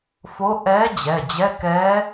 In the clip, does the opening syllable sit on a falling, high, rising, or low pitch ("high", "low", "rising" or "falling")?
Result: rising